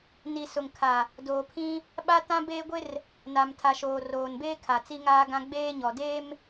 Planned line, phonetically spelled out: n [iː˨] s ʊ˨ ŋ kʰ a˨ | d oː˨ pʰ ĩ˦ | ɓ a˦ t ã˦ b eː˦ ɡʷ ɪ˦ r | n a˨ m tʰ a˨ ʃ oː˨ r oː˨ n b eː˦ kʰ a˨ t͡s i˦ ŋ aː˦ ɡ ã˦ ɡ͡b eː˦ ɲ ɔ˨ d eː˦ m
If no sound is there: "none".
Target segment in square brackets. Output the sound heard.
i˨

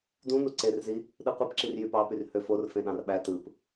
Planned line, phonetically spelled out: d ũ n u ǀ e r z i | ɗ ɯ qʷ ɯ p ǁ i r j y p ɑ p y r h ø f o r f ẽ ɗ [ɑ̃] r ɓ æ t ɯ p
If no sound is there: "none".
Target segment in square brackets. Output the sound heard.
ɑ̃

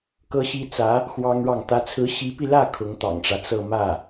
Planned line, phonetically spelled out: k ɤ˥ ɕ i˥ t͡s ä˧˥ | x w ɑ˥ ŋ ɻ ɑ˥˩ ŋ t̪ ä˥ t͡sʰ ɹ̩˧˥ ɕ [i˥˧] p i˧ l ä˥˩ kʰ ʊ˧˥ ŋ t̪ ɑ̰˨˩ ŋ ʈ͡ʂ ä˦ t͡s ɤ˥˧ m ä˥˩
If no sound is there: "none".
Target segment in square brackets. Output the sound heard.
i˧˥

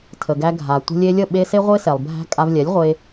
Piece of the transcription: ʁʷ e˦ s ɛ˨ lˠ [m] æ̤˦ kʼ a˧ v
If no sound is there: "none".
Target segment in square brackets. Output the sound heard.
bʱ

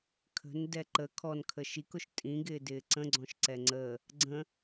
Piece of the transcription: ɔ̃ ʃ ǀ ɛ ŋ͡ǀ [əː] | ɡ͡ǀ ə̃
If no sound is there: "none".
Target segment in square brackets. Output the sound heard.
əː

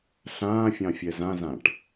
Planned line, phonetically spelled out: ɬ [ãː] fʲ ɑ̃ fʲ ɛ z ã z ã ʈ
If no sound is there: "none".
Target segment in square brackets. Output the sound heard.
ãː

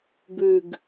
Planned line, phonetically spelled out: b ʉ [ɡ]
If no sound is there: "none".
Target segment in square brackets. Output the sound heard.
ɡ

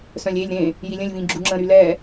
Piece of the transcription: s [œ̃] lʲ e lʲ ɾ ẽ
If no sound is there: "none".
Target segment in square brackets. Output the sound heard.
œ̃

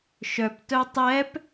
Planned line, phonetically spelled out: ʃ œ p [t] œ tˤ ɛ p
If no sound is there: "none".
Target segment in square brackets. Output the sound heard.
t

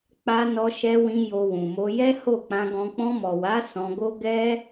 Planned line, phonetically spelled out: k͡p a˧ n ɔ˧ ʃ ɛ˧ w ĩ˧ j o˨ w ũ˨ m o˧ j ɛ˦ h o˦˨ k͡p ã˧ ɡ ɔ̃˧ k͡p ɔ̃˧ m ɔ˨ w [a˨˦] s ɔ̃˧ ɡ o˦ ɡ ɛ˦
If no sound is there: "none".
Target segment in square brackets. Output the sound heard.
a˨˦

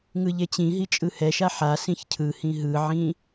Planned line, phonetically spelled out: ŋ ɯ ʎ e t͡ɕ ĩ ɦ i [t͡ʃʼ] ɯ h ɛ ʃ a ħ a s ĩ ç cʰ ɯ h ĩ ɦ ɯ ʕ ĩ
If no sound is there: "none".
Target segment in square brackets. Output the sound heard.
t͡ʃʼ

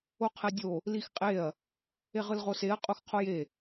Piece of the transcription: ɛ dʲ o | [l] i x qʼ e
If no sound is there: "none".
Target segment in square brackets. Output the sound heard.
l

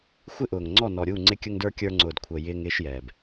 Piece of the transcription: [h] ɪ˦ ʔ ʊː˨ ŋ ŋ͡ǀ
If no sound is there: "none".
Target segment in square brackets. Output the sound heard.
xʷ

